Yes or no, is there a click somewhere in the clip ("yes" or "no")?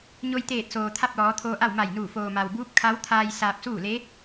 no